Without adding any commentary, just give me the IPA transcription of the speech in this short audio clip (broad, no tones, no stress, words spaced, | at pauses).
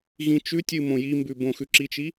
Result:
ɣĩt͡ʃʉtʲɨ mõjimbʉ bõxʉǁit͡ʃi